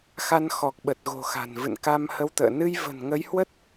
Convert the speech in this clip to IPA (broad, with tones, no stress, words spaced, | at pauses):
xa˧nxɔ˨˩k̚ɓə˨˩t̚ɣo̤˨˩ xa̤˨˩nvɨ̰˧˨n ka˧mhə˧wt̪ə̰ː˧˨ nɨ˧jvə̤˨˩nŋə˨˦jhwə˦˥t̚